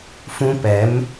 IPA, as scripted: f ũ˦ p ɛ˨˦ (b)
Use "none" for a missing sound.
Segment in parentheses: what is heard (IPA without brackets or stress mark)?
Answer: m